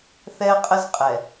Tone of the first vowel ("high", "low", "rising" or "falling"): high